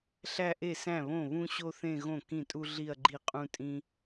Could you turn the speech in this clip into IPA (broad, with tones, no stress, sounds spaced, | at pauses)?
ɬ æ˥˧ ʔ e˥˩ s æ̃˥˩ β õ˥˩ β ũ˥ ɕ o˥ θ ẽ˥˧ ɣ õ˥˩ k ĩ˥˩ tʼ u˥ ɮ i˥˧ ɐ̯ ɡ͡ǃ i˥˩ qʼ ũ˥ tʼ ĩ˥